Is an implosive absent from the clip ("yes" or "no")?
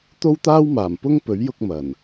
yes